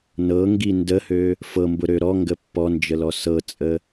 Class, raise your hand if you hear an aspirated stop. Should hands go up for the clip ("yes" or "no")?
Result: no